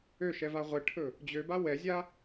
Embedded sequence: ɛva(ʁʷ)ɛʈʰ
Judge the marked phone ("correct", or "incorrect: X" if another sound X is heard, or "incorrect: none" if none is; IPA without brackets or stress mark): correct